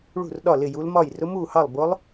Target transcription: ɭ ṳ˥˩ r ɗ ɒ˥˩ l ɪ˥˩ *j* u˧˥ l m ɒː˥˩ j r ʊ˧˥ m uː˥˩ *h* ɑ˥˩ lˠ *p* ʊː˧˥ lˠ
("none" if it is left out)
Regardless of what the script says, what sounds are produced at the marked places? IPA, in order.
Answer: j, h, b

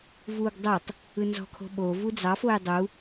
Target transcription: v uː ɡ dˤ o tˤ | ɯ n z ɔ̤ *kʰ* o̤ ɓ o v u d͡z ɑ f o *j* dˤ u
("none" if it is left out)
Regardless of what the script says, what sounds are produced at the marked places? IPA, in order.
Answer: kʰ, j

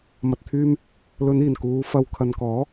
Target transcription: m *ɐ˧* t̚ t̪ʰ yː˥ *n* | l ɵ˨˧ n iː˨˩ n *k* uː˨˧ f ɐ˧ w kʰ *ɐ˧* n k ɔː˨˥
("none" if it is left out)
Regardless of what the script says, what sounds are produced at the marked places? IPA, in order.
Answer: ɐ˧, m, k, ɐ˨

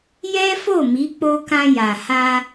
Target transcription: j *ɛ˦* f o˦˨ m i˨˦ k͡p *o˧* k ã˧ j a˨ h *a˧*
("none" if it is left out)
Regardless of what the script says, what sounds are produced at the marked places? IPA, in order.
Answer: ɛ˦, o˧, a˧

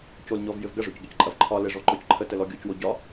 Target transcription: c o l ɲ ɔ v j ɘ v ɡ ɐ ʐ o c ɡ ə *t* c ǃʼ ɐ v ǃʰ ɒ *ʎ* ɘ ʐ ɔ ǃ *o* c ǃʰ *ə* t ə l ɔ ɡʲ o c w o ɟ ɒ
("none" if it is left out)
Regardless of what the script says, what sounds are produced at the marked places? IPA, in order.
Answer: none, l, ɔ, ə

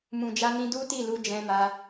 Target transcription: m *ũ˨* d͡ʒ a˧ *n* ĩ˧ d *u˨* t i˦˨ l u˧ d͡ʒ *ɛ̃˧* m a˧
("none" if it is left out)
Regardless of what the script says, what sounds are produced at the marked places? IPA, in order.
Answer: ũ˨, n, u˦, ɛ̃˧

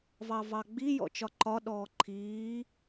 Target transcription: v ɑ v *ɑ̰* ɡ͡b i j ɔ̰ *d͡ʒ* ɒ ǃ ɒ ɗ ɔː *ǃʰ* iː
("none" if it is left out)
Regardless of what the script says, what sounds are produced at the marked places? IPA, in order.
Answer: ɑ, t͡ʃ, ǃʰ

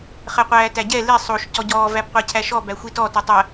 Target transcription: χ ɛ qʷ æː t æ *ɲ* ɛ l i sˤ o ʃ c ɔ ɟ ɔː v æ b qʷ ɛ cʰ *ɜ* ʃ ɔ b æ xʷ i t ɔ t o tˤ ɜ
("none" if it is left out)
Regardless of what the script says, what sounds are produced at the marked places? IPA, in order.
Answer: ɟ, æ

